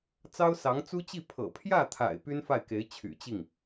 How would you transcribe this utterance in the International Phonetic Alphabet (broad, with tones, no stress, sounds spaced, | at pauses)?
t͡s ɑ˥ ʊ̯ s ɑ˧˥ ŋ t͡s u˥ t͡ɕ i˥˩ pʰ ɤ̰˨˩ pʰ j ä˥˩ t̪ʰ a̰˨˩ ɪ̯ p y˥ n f a˥˩ ɪ̯ k e˧˥ ɪ̯ t͡ɕʰ y̰˨˩ t͡ɕ i˥˩ ŋ